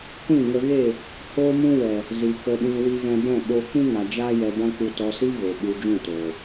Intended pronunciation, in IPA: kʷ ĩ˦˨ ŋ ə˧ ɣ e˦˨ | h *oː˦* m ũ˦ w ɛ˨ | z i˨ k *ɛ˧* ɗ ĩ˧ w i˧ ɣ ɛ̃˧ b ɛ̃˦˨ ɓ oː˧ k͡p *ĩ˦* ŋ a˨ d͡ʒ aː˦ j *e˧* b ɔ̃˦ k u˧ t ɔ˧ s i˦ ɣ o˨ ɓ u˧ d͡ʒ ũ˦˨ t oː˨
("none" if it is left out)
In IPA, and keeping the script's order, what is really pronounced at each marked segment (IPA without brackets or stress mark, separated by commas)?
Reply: oː˦, ə˧, ĩ˦, ɛ˧